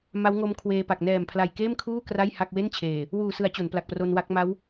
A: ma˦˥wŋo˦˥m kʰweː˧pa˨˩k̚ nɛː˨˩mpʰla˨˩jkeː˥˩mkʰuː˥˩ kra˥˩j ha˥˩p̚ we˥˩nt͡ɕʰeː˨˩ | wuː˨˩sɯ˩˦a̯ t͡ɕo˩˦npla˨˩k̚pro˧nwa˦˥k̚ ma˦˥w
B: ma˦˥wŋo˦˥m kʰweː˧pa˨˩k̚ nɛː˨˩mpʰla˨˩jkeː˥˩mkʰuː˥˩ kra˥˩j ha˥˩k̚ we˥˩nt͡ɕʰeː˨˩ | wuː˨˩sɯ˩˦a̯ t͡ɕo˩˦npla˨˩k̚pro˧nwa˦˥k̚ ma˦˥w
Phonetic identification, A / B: B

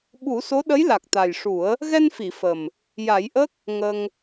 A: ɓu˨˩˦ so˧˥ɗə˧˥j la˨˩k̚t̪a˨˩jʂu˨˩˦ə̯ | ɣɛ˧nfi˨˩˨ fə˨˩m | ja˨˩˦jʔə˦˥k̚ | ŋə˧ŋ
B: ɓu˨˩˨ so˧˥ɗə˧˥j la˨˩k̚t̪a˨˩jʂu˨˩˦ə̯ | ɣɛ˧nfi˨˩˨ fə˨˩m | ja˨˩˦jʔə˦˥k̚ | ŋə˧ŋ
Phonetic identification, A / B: A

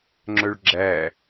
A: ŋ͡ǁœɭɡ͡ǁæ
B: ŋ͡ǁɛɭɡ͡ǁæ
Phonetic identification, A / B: A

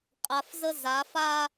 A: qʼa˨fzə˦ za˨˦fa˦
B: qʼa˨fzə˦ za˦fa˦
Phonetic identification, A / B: A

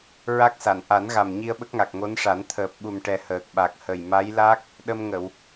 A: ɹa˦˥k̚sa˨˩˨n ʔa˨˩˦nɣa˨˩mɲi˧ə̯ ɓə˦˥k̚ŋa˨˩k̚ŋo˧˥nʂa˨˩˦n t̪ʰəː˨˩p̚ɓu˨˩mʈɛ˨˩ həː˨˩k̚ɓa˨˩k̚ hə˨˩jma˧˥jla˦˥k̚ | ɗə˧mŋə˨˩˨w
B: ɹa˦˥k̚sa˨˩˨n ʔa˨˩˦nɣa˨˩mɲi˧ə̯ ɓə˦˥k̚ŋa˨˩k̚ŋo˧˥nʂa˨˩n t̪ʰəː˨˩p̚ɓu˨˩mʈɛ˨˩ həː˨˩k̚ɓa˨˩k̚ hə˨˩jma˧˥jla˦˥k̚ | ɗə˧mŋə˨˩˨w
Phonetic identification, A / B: A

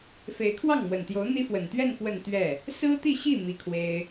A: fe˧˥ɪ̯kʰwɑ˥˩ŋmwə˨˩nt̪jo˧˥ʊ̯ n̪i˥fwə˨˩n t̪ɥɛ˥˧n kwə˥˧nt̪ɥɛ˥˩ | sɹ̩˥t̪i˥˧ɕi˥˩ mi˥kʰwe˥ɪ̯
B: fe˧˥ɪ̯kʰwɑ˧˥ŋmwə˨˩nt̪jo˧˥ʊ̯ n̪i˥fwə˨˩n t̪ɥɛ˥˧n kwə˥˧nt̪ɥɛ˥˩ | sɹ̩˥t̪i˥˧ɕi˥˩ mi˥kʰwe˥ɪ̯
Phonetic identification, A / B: A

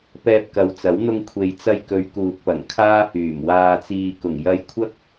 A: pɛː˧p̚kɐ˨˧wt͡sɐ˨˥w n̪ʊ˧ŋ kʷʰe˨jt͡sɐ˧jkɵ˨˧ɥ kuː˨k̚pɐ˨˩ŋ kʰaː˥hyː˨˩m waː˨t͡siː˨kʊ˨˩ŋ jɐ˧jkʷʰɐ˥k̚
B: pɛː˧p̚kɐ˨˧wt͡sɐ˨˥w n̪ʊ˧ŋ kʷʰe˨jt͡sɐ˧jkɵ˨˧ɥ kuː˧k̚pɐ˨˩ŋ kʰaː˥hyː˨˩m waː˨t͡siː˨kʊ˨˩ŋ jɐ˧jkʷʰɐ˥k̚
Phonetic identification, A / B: A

